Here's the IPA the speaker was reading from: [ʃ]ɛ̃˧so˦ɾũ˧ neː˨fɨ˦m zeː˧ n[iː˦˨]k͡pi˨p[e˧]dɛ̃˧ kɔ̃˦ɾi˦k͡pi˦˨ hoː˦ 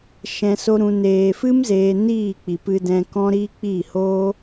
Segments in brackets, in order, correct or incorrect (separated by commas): correct, correct, incorrect